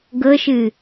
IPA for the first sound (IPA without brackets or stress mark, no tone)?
ɡ